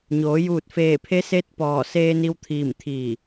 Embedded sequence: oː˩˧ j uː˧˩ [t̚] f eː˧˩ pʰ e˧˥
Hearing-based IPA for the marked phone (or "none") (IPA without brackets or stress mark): t̚